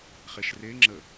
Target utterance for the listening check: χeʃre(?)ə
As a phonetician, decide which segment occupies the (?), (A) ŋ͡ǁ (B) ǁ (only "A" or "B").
A